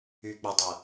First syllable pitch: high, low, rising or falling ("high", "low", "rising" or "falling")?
low